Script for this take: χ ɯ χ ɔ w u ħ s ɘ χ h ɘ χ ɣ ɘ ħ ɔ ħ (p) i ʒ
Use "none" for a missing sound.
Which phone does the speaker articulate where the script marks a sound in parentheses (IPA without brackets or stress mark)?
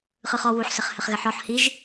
h